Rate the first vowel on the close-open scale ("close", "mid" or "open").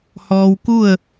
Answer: mid